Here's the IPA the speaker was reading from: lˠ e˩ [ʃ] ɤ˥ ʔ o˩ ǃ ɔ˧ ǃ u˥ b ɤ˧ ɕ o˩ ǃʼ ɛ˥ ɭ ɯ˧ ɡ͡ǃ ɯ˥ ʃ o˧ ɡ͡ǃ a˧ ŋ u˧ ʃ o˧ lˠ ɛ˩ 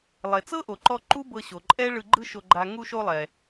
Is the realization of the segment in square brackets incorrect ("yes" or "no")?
yes